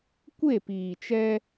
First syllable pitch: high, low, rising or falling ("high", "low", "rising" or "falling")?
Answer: falling